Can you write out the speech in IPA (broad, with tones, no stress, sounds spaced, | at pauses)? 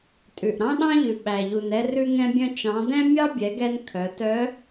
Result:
tʼ ʉ˩ ʔ ɾ ɑ̃˥ ɗ ɑ̃˥ ʎ ʉ˩ ɓ æ˩ ʎ u˩ n ɛ˧ r ʉ˧ ŋ ɛ̃˧ bʲ œ̃˧ t͡ʃ ɑ̃˩˧ d ɛ̃˥ mʲ ɑ˥ bʲ ɛ˩˧ ɡ ɛ˧ n kʰ œ˩˧ t œ˧˥